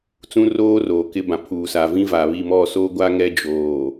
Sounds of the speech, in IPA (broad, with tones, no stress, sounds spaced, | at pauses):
t͡s ũ˦ r oː˦ r oː˨ k ɪ˦ b ã˨ pʰ uː˨ s a˨ v ĩ˦ v a˨ β i˨ m ɔ˦˨ s oː˦ ɡʷ a˦ ŋ ɛ˦ d͡ʒ oː˨